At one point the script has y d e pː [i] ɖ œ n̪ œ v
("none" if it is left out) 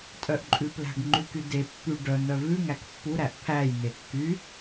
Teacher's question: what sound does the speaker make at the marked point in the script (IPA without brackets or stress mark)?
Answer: y